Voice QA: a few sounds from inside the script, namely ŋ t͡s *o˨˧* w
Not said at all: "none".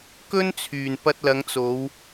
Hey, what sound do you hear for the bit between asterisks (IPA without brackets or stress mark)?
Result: o˨˧